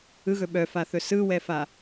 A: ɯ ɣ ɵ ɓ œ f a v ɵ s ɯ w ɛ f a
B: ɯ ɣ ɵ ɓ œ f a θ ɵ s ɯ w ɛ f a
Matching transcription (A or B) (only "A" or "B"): B